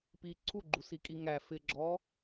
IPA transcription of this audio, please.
p i ǀʰ u ɡ͡ǃ u s i kʼ i ŋ æ f ɪ ɡ͡ǁ ɔ

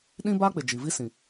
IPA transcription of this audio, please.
ɗ ĩ˦ b a˦ k͡p ɪ˨ d͡ʒ i˨ v i˦ s ĩ˨

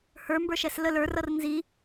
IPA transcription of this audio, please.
h ə˞ m b ə˞ ʃ ɛ s l ə l ə˞ r ʌ r n z i

